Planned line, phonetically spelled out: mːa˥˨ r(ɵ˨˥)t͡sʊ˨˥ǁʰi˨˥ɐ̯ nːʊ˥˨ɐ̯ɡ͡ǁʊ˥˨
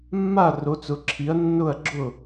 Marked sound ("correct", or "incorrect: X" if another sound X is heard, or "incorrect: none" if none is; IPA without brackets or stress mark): incorrect: o˨˥